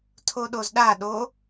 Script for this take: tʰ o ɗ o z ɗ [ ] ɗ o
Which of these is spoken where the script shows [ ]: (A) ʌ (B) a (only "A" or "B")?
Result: B